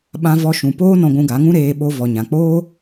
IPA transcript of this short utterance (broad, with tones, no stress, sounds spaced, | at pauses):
ɓ ã˧ v ɔ˧ ʃ ũ˨ p oː˦ n ɔ̃˧ ɡʷ ũ˧ ɡ a˨˦ ŋ ũ˦ ɾ eː˧ ɓ o˧ v ɔ˨ ɲ ã˨ k͡p oː˦